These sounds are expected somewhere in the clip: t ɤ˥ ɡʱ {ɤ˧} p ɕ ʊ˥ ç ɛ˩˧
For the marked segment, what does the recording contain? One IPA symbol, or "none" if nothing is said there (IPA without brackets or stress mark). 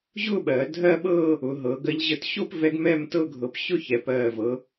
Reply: ɤ˧